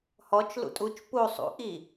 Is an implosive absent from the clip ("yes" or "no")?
yes